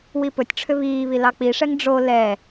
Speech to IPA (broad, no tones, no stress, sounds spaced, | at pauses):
w i p ɵ tʲ ʈ͡ʂʰ ʏ β iː β i l ɑ k͡p i ʂ ɛ ŋ ɖ͡ʐ o l ɛ